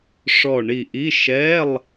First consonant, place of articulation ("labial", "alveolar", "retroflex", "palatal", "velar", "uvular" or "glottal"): retroflex